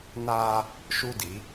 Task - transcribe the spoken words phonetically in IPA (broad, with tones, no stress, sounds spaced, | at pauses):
n aː˦ | ʃ u˦ d i˨˦